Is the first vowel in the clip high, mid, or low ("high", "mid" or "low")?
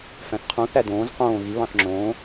low